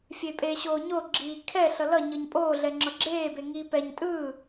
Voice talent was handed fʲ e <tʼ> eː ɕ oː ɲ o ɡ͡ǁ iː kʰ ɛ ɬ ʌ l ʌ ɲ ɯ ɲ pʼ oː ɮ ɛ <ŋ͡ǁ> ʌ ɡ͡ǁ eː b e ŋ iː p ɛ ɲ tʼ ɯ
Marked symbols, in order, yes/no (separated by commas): no, yes